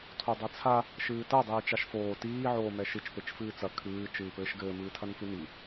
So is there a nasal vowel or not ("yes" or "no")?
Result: no